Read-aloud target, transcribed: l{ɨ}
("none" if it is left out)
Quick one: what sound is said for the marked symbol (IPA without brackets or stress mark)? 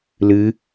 ɨ